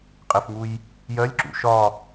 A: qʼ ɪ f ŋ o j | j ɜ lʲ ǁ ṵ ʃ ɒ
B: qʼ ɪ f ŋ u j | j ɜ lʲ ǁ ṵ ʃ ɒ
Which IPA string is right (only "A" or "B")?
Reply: B